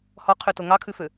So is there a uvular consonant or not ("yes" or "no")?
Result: yes